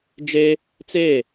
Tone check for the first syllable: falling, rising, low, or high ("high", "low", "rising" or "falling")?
high